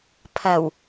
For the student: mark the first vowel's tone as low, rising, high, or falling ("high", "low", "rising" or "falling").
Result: low